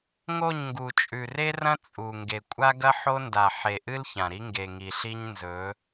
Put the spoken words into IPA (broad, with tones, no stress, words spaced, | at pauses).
ŋo˦˨ɲŋɡu˨ t͡ʃʼʉ˨re˦rɐ̃˦ t͡sʼu˨ŋɡe˨ kʷʼa˦ɡɐ˦ ħo˦nda˨ ħe˨ʔɨ˦l çã˨ɾi˦ ŋɡe˨ŋi˨ɬi˦ɲ nzɵ˨˦